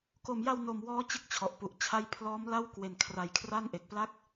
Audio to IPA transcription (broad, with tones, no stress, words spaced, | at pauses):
ko˨˩mja˧w no˨˩m wɔː˦˥t͡ɕɯ˦˥k̚ t͡ɕʰɔ˨˩ʔpu˨˩ʔt͡ɕʰa˥˩j pʰlɔː˦˥mla˥˩w kwe˨˩nkʰra˨˩j kʰra˥˩nʔe˨˩k̚pla˥˩k̚